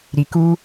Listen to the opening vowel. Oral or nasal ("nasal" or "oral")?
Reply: oral